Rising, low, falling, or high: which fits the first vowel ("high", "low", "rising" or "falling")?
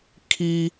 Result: high